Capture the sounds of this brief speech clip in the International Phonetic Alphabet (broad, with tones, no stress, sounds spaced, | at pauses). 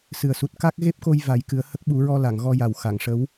s ɨ˨˩ ə̯ s u˨˩ t̚ k a˦˥ k̚ ɣ e˦˥ p̚ k o˧ j v a˨˩˦ j k ɨ˨˩˦ ə̯ h ə˦˥ k̚ ɓ u˨˩˦ ɹ ɔ˧ l a˨˩˨ ŋ ɣ ɔ˧ j a˨˩ w x a˨˩˨ ŋ ʂ ə˧˥ w